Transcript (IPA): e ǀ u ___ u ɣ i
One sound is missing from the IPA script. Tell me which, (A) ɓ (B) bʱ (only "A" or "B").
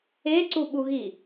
A